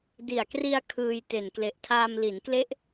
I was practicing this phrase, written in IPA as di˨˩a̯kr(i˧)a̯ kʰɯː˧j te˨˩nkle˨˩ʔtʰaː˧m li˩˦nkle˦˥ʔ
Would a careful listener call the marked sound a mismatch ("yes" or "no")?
no